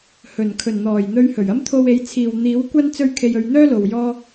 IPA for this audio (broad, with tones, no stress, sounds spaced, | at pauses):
h ɵ˨˩ n kʰ ɵ˨˩ n n̪ ɔː˨˩ j n̪ ɵ˧ ɥ h ɵ˨˩ ɥ ɐ˥ m t̪ʰ o˧ w e˨˥ j t͡sʰ iː˨ w n̪ iː˨˥ w kʷ ɐ˥ n t͡s ɵ˥ ɥ kʰ e˧ j ɵ˧ ɥ n̪ œː˥ l o˨ w j ɔː˧